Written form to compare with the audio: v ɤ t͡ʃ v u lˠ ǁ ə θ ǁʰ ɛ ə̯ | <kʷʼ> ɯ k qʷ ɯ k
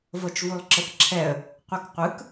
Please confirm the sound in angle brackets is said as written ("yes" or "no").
no